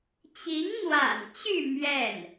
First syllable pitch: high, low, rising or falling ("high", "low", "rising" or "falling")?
rising